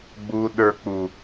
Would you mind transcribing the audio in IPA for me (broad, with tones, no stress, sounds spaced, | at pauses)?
ɡ͡b u˨ ɗ ə˞˨ k͡p u˨